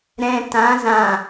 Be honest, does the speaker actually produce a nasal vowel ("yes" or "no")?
yes